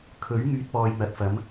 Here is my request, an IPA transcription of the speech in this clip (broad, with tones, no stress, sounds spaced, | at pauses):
kʰ ɵ˨˥ ɥ ŋ yː˧ t̚ p ɔː˨ j n̪ ɐ˨˥ t̚ f ɐ˨˥ m